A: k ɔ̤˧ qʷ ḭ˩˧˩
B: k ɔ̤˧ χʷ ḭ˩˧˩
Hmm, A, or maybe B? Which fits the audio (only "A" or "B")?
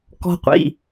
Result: A